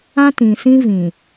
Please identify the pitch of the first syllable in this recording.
high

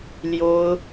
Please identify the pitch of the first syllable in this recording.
high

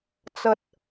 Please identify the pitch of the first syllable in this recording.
low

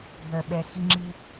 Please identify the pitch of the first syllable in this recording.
low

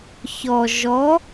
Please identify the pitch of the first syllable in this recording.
low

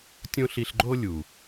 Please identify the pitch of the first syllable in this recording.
high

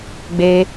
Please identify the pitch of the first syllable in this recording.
low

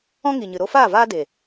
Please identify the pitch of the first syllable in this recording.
high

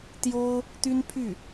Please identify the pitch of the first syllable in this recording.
high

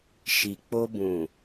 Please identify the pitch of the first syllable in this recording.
low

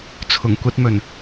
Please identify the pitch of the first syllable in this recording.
low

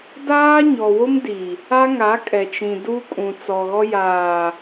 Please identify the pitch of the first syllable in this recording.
high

